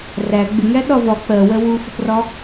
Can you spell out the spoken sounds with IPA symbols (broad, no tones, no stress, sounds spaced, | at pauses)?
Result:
r æ ɡ͡b ɪ ŋ æ ɗ ɒ v ɒ k͡p ɜ w ɜ w u f ə p r ɒ